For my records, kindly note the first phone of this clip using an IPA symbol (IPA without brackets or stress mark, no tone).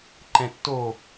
ǃ